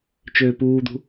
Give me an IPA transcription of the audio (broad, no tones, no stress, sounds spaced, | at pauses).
t͡ʃ øː p uː d̪ ṳ